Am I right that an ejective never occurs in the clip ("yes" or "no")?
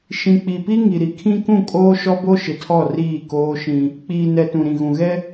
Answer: no